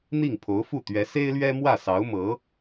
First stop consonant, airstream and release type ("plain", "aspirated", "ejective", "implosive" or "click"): aspirated